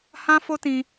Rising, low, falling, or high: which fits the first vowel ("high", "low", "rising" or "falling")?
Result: high